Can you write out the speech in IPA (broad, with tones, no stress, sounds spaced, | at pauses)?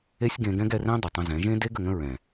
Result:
e˦ sʲ ɡ ẽ˧ ɡ ɛ̃˦ ɡ ɛ˧ r ẽ˦ dˤ ʏ˨ tˤ ə̃˧ z ɛ̃˨˦ ʒ ẽ˦ d e˦ ɡ ə˨ ŋ ə̃˦ ɹ ɛ̃˨